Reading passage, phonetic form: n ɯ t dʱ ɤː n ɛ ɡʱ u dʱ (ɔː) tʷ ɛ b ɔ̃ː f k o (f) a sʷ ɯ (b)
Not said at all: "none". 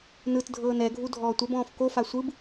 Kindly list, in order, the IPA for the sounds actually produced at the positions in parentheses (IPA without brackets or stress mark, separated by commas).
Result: ɔː, f, b